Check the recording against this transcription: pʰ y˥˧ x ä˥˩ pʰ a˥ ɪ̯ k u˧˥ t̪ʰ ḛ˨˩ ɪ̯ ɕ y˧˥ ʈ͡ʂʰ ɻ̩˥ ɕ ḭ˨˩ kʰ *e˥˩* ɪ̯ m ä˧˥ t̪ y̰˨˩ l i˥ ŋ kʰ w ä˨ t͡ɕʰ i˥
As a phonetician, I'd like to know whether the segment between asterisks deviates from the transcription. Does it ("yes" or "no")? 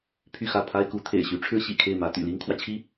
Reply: no